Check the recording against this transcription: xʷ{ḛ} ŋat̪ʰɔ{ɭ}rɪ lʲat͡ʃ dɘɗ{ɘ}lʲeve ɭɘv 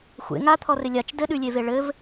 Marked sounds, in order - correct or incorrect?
correct, incorrect: none, incorrect: ʉ

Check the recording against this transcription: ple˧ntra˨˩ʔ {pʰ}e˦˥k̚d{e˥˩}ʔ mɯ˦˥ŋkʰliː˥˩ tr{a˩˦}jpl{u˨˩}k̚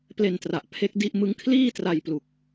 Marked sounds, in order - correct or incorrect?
correct, incorrect: i˥˩, incorrect: a˧, correct

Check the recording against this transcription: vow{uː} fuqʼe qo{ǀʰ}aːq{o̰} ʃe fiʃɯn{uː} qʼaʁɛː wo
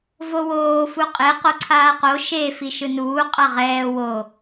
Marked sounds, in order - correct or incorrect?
incorrect: oː, correct, incorrect: o, correct

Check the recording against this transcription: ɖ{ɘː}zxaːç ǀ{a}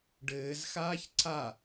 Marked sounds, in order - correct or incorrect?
correct, correct

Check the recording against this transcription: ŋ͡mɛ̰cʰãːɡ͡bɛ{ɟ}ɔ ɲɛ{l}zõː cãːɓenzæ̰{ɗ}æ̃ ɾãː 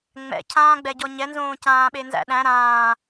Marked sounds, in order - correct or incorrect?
correct, incorrect: n, correct

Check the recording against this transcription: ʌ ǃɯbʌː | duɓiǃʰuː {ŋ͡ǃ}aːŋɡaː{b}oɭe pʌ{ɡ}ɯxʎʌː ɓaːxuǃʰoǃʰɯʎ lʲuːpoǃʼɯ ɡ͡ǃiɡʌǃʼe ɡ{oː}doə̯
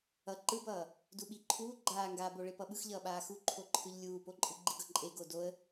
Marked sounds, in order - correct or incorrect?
incorrect: ɡ͡ǃ, correct, incorrect: ɓ, incorrect: o

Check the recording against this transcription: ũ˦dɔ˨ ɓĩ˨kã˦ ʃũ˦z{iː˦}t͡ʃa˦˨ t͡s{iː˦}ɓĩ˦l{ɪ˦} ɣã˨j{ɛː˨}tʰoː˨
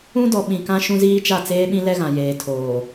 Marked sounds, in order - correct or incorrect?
correct, incorrect: eː˦, incorrect: ɛ˦, incorrect: eː˨

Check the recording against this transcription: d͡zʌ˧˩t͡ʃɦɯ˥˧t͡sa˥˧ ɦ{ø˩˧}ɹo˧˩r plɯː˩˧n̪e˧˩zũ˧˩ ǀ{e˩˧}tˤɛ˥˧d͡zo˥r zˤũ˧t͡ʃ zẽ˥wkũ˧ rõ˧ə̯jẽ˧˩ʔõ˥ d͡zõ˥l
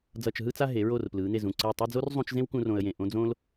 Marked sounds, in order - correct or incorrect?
incorrect: e˩˧, incorrect: e˧˩

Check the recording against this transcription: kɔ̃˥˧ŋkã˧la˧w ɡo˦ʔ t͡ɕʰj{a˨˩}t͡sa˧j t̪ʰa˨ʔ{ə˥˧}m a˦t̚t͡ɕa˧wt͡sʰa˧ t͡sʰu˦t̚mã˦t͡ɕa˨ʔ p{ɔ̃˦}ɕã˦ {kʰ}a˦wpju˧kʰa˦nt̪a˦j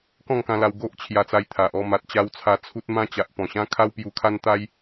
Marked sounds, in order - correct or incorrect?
incorrect: a˧, incorrect: ɔ˥˧, incorrect: ɔ̃˨˩, correct

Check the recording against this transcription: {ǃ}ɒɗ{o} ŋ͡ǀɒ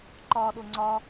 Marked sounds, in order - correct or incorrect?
correct, correct

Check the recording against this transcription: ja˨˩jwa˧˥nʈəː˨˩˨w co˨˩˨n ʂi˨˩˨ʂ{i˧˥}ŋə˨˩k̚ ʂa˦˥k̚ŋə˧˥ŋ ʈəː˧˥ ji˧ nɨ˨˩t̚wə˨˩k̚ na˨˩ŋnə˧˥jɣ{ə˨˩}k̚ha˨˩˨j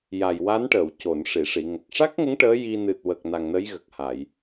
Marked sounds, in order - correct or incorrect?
incorrect: i˨˩˨, correct

